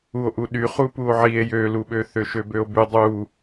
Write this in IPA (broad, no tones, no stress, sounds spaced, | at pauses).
u o̯ ʔ u ɗ y χ u p u o̯ ʕ i e̯ j ø l u ɓ ø θ ø ʃ ø b ø o̯ b y dˤ u